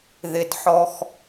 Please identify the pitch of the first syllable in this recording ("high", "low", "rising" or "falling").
low